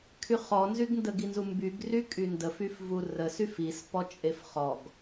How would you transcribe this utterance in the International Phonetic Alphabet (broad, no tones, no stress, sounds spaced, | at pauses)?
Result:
kʰ y χ ɔ n z y ɡ n d ə ɡ i n z u m b y ɡ r y kʼ y n d ə f y f v u r ə s y f i s p ɔ t͡ʃʼ e f χ ɔ ɡ